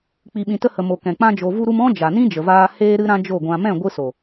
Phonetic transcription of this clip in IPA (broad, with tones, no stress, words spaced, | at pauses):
k͡pi˨ɓĩ˨tə˧hə˨ mo˨kɛ̃˨ k͡pã˧d͡ʒo˨ vu˦ɾu˦m ɔ̃˦ d͡ʒa˨nĩ˦d͡ʒə˨vaː˧ heː˧ɾɨ˧ɾã˧ d͡ʒo˦˨ɡʷã˧ mɛ̃˦˨ɡʷɨ˧so˨